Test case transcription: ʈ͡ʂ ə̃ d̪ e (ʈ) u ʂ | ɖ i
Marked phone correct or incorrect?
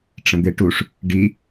correct